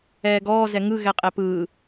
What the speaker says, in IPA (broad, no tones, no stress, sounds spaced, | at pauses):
ɛː ɡ ɔː z ɛ ŋ ɯ ɣ ɛ qʼ ɛ p ɯː